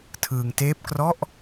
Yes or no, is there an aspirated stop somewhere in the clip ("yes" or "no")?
yes